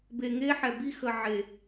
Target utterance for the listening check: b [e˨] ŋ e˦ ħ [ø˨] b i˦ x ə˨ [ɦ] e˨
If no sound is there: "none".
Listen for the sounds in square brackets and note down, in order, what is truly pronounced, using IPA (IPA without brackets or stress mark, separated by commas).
e˨, ɛ˨, ʕ